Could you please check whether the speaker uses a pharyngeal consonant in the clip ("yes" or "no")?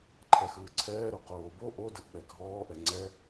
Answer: no